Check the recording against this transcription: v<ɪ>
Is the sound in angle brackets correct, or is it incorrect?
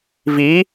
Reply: incorrect